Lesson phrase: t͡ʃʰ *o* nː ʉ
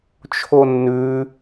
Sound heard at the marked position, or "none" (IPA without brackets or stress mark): o